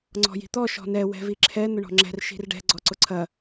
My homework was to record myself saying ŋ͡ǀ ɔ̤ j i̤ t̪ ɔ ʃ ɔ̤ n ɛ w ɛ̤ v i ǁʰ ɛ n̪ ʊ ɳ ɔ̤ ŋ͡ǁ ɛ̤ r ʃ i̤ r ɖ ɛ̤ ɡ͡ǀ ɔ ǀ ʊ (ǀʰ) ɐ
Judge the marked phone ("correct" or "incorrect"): correct